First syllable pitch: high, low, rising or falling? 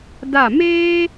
falling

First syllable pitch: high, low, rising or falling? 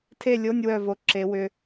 falling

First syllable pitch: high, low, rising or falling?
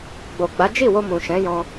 low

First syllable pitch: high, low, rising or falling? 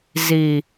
low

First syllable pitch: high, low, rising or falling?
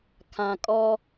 low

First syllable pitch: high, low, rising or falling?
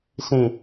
low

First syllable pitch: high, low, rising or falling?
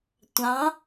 rising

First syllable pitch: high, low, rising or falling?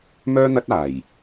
high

